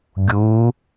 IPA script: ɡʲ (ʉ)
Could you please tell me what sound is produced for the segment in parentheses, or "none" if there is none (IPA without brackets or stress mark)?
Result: u